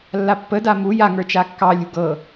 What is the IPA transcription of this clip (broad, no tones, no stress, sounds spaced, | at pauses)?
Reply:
lː a pː ə d a m u j a ŋ ə˞ t͡ʃ a kː ɑ lʲ ṳ ɡ ɤ